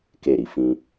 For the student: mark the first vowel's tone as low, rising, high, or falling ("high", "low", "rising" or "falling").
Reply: falling